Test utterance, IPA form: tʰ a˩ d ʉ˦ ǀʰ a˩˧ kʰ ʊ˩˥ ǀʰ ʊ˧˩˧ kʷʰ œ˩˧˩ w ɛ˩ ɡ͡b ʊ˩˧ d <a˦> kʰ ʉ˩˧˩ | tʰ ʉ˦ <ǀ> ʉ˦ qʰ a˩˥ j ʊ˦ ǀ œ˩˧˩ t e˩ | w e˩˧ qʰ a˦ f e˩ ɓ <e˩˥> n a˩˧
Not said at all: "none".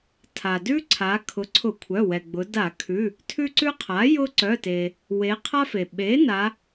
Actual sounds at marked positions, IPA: a˧˩˧, ǀ, e˩˥

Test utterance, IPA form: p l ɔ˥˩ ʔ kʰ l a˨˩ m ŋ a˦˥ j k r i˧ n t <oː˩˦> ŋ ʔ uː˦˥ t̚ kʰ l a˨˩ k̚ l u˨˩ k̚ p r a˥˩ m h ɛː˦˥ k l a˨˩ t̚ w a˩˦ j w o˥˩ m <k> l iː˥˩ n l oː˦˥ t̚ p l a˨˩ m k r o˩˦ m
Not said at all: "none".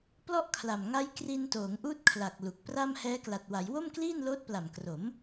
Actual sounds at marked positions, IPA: oː˩˦, k

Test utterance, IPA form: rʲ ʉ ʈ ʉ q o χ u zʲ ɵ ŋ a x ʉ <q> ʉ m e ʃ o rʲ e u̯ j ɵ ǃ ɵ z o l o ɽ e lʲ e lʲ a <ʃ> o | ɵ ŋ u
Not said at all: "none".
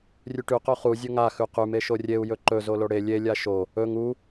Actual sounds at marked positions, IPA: q, ʃ

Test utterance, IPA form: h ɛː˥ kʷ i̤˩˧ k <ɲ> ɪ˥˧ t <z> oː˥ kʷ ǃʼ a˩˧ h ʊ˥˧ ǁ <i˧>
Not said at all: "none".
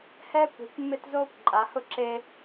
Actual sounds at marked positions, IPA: mː, z, e˧

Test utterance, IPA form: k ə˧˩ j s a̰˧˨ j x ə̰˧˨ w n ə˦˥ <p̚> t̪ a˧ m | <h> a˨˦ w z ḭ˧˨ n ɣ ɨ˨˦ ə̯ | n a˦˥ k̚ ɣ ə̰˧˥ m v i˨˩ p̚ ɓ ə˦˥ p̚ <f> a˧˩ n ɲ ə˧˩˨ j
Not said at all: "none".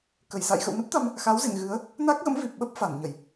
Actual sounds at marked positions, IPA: p̚, x, f

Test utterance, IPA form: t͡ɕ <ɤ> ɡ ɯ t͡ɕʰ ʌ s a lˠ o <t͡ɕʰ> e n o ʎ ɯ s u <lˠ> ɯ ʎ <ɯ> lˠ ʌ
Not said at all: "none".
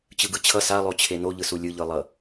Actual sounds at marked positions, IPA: ɯ, t͡ɕʰ, lʲ, ɯ

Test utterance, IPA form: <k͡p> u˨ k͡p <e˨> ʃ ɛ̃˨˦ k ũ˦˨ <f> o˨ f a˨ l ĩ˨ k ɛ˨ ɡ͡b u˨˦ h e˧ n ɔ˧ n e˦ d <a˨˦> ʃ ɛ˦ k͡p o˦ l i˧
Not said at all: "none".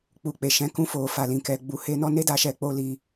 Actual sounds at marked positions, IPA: k͡p, e˨, f, a˧

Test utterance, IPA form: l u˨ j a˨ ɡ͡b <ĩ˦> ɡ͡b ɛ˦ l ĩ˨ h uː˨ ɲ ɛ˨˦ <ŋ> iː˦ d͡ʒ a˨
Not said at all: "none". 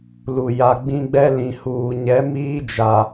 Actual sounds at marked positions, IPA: ĩ˦, m

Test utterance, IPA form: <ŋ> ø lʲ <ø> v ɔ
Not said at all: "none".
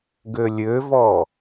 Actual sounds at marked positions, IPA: ɡ, ø

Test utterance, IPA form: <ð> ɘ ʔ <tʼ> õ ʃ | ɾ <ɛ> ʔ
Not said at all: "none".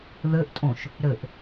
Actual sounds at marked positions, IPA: ð, tʼ, ɘ

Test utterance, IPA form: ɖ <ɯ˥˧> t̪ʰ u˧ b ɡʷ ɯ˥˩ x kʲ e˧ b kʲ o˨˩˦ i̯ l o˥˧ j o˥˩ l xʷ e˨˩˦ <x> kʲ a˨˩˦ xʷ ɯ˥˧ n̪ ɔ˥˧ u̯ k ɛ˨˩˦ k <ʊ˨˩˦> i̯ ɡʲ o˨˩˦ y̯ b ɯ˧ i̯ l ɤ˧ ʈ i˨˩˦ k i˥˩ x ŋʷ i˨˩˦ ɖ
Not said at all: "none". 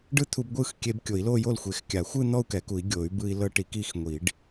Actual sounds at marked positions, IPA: ɯ˥˧, x, u˨˩˦

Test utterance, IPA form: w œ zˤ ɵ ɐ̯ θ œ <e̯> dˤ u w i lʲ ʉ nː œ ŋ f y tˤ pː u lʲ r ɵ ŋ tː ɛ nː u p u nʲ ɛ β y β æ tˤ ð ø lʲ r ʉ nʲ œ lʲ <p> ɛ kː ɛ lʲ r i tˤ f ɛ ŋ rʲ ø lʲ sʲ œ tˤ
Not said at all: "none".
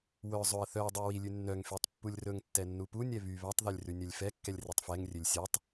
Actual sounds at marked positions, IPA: ɐ̯, f

